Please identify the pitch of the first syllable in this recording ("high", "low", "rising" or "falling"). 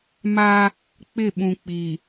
high